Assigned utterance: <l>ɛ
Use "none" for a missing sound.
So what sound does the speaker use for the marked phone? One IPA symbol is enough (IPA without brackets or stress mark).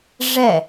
ʐ